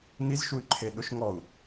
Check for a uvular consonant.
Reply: absent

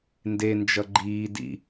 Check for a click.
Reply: present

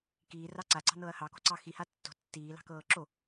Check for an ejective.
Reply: absent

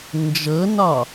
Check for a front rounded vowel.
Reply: absent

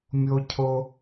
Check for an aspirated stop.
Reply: present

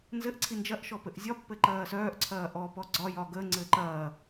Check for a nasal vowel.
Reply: absent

